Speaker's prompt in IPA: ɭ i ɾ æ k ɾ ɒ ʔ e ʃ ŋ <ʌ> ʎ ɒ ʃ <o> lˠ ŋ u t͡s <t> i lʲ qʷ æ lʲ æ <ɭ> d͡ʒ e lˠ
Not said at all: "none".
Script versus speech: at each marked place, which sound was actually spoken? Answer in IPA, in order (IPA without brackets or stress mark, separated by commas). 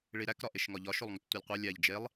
ɒ, o, tʷ, ʎ